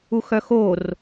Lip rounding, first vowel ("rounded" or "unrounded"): rounded